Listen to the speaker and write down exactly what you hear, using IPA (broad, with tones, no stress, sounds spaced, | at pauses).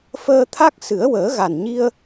f əː˧ t̪ʰ a˦˥ k̚ s ɨ˨˩˦ ə̯ w əː˨˩˦ ɣ a˨˩ n ɲ i˧ ə̯